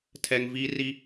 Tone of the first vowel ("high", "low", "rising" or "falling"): high